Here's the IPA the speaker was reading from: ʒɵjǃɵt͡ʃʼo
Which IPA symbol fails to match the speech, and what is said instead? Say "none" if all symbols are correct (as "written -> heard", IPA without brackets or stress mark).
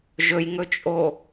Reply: ǃ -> ŋ